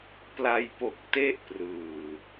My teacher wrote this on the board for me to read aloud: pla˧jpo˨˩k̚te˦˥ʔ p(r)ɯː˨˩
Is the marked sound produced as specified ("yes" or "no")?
yes